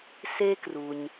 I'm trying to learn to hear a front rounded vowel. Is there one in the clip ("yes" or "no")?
no